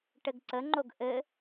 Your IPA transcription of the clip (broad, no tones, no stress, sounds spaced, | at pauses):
ʈ ɘ ɡ ǀ ə ŋ͡ǃ o ɡ ʔ ɘ